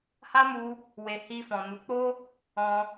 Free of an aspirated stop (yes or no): yes